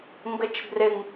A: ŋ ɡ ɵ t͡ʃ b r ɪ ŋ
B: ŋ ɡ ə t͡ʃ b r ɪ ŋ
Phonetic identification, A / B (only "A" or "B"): B